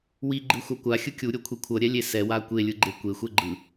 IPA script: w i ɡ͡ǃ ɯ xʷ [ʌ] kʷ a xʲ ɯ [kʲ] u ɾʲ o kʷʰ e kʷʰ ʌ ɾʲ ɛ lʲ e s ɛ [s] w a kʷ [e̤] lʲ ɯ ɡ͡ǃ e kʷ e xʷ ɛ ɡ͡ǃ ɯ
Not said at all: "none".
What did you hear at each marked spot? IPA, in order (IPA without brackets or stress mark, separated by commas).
a, kʲ, none, e